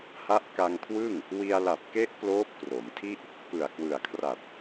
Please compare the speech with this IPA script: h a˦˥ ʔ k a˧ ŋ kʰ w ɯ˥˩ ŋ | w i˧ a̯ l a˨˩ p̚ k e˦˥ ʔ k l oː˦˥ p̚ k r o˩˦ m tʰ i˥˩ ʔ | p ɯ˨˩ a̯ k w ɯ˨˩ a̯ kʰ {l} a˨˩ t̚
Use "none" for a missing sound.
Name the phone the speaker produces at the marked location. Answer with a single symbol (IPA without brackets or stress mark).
r